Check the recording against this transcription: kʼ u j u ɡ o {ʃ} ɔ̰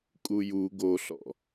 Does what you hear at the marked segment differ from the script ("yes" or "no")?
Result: yes